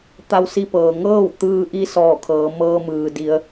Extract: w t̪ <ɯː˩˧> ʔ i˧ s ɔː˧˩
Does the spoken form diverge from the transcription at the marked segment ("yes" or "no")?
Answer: yes